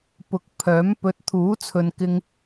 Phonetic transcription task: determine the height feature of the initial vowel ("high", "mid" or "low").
high